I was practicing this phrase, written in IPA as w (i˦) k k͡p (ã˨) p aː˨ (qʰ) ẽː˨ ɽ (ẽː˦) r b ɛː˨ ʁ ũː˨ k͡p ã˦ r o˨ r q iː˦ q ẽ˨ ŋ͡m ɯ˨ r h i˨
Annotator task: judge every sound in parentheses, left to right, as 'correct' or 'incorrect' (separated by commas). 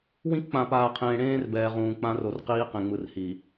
incorrect, correct, correct, correct